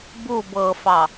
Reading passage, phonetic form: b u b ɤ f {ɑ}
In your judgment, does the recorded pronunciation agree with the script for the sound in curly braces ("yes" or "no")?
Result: yes